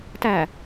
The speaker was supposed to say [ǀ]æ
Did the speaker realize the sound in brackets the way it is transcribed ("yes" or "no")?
no